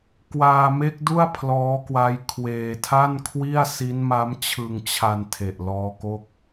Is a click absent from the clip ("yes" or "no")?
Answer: yes